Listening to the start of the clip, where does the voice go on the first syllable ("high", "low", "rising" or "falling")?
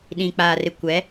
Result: low